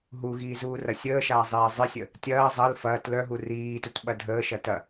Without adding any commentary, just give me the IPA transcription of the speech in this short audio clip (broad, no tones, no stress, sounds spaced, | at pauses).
ɦ u ɣ iː z uː r ɐ sʲ əː ʃ aː zˤ iː zˤ ɪ sʲ ə | tʲ ɐː zˤ ɐ l f ɐː t l œ ɦ u r iː t u t ɓ ɐ dʱ əː ʃ ɐ t ɐ